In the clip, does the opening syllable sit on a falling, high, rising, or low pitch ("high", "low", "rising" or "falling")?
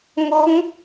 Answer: rising